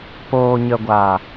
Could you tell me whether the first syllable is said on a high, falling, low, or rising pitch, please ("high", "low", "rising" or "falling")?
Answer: low